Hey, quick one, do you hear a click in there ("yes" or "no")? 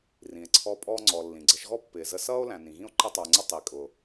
yes